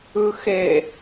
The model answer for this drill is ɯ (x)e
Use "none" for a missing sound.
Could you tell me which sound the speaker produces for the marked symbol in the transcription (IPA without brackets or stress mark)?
x